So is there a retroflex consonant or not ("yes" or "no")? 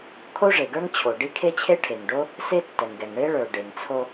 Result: yes